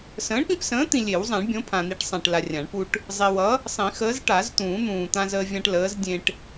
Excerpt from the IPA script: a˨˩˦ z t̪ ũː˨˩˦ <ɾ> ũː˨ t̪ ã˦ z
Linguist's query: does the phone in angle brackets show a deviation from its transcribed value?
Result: yes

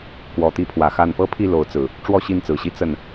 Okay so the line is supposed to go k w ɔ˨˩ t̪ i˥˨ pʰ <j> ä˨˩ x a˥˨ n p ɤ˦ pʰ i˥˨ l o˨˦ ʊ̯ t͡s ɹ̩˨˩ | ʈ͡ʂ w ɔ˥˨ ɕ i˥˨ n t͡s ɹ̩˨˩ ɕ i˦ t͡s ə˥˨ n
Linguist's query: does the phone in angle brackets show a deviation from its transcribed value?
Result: yes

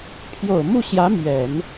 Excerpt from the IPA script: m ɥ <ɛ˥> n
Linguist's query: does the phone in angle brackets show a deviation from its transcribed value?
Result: yes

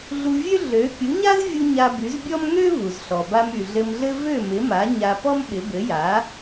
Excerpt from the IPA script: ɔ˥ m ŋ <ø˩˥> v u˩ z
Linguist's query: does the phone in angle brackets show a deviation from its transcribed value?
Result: yes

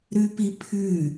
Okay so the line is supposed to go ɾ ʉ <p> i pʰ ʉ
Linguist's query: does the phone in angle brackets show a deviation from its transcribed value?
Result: no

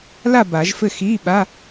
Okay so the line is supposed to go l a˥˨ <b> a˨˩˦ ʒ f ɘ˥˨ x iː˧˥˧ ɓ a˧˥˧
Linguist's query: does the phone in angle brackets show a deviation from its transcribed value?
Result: no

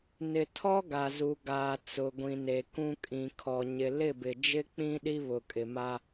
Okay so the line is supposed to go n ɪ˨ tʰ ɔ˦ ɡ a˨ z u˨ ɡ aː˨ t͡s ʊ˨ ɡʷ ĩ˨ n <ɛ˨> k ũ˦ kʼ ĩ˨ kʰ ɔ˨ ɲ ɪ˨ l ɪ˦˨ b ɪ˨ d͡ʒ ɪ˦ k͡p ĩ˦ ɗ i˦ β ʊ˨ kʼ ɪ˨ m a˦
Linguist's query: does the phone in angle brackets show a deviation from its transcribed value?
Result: yes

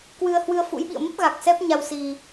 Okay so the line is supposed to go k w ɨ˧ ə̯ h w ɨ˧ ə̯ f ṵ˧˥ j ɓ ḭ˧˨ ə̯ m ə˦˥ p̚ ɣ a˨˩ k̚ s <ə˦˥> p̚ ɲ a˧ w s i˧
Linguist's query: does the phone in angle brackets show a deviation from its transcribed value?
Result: yes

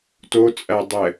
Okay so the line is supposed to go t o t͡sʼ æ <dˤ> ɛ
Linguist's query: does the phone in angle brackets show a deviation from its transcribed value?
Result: no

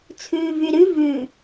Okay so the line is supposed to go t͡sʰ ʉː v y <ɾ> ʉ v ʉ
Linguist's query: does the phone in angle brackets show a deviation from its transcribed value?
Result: no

